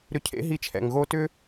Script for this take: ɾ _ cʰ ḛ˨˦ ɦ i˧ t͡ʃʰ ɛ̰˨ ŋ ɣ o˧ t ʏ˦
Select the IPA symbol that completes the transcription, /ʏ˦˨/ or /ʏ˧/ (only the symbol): ʏ˧